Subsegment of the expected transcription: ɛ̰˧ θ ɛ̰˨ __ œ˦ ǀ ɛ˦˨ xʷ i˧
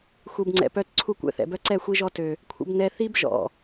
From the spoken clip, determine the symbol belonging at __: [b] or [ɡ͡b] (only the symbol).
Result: b